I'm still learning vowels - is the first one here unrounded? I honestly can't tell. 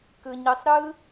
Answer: yes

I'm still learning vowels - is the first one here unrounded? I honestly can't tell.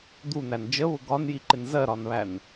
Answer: no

